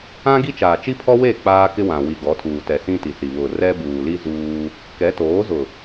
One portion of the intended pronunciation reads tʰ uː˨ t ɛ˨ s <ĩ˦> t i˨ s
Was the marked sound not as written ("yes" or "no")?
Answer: no